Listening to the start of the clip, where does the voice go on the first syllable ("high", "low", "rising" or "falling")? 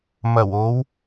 low